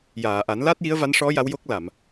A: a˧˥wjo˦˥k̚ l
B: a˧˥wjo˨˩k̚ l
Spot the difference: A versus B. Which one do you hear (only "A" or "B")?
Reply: A